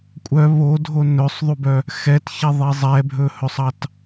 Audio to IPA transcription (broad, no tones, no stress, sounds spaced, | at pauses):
kʷʼ œ β o dʱ o n ɵ sˤ ðˤ u b œ | x ɛ t ç ɛ ðˤ i zˤ ɛ bʱ ɵ h ɵ sˤ ɑ t